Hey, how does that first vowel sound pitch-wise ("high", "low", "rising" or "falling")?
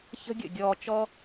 high